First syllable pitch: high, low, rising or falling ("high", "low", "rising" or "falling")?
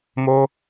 high